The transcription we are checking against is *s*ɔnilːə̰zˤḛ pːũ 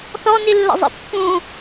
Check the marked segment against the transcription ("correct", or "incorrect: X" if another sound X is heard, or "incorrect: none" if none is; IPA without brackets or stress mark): incorrect: θ